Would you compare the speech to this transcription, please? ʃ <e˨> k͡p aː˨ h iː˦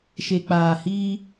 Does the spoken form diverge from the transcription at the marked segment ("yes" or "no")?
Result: no